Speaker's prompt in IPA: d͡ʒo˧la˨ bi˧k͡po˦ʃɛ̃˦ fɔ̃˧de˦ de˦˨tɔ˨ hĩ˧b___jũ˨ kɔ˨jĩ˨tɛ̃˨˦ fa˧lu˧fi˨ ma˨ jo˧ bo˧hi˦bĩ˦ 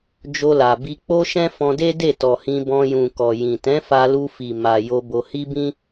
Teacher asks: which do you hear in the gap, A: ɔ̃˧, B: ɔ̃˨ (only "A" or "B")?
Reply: A